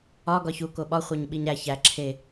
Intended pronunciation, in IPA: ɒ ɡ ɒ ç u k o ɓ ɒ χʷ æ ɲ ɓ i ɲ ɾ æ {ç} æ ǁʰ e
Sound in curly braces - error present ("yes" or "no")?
no